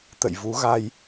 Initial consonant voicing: voiceless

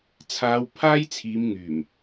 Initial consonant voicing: voiceless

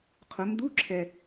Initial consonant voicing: voiceless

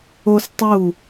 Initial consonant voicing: voiceless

